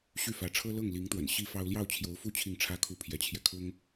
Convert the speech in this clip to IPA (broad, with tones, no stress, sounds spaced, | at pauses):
ɕ y˥˩ f ä˧˥ ʈ͡ʂʰ ɤ˥ l ɤ˥˩ ŋ l i˧˥ ŋ t̪ w ə̰˨˩ n ɕ i˥ f ɑ˥ ʊ̯ l j ɑ˥˩ ʊ̯ t͡ɕʰ j o˧˥ ʊ̯ f u˥˧ t͡ɕʰ i˥˩ ŋ ʈ͡ʂʰ ä˥ kʰ u˥˩ pʰ j ɛ˧˥ t͡ɕʰ j ɛ˧ kʰ ʊ˥ ŋ